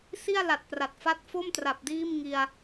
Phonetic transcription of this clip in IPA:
s i˥˩ a̯ l a˨˩ t̚ p r a˨˩ t̚ f a˦˥ t̚ f o˥˩ m t r a˨˩ p̚ d iː˥˩ m ŋ i˧ a̯

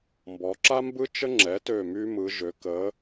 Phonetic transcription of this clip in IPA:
m b ɔ˩˧ ǁ a˦ m b ɯ˦ t͡ʃ ə˦ ŋ͡ǁ ɛ˩˧ t ø˨˩ m y˦ m ɯ˩˧ ʒ ø˩˧ k ə˨˥

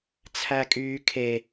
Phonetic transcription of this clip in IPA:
t͡sʰ æ kʼ yː kʰ e

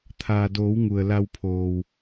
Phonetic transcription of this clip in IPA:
t̪ʰ aː˩ d oː˩˧ w ŋ u˩ ə̯ l a˧ w pʰ oː˩ w

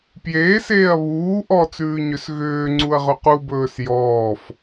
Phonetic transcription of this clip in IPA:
p j eː s eː ɐ̯ β uː ʔ ɔ t͡s ʉː ɲ ʏ s ɣ ʏː ŋ͡ǀ u ɐ̯ ʁ ɵ q u b ɵː s j ɔː f

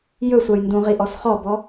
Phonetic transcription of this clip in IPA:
j ɵ sʷ a j n d ũ ʁ i ʔ ɔ s χ ɔ b ɔ

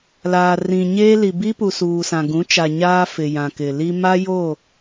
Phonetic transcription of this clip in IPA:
l aː˨ r ĩ˨ ɲ eː˦ l i˨ b i˦ p u˨ s uː˨ s ã˨ ɡ ũ˨˦ t͡ʃ a˨ ɲ aː˦ f ɪ˨ j ã˨ k ɪ˨ l i˦ m a˦ j o˦˨

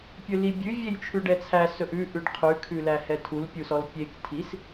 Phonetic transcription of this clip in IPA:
pʲ ɵ l i bʲ ʉ vʲ e j t͡ʃʰ ʉ ɖ ɛ t͡sʰ æ s ɵ ʔ ʉ ʔ ʉ ɖ qʰ ʉ kʰ ʉ l æ h ɛ tʰ u l pʲ u s ɔ l pʲ e k tʰ i s

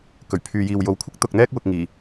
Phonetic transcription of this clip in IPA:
k ɵ˨˩ ɥ pʰ yː˨ j iː˨ w j o˨˥ w kʷʰ ɪ˥ k̚ t̪ ʊ˨ k̚ n̪ ɛː˥ k̚ w ʊ˨ k̚ ŋ iː˨˩

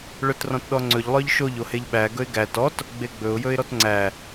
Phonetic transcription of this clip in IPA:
ɭ œ t r ɔ̃ t ɗ ɔ ŋ͡ǀ ɵ ʎ lˠ œ ʎ ʃ o ʎ o h e ʎ ɓ æ ɡ ɵ ɪ̯ ɡ æ t ɔ t | ɡ͡b e ɡ͡b ɵ ʊ̯ j ɵ ɪ̯ ɾ ɔ t ŋ͡ǀ æ

